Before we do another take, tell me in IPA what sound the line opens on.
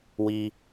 w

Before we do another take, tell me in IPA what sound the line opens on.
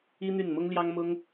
i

